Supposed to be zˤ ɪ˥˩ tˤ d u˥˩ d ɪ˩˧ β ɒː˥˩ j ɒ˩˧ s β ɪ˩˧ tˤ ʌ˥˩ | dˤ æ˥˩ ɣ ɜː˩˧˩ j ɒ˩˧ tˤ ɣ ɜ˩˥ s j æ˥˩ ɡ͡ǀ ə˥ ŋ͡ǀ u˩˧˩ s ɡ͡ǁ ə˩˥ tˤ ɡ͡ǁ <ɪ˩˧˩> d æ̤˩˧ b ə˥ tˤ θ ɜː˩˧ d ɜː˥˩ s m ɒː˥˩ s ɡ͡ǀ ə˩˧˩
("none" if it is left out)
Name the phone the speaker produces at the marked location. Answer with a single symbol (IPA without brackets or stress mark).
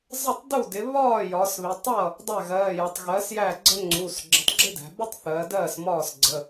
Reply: ɪ˥